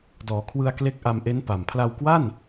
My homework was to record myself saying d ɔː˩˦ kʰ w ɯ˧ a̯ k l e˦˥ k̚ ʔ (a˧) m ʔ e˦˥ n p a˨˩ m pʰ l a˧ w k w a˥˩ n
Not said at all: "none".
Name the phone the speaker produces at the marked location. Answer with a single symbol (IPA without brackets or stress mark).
a˧